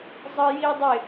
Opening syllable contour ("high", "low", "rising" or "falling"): high